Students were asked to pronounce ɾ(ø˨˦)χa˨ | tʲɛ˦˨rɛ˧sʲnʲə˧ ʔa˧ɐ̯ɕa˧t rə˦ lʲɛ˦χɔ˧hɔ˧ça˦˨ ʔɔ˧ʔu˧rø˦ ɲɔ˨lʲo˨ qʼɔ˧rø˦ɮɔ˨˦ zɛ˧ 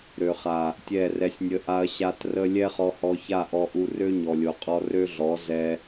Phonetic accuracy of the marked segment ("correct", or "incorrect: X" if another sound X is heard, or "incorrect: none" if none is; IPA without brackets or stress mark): incorrect: ø˨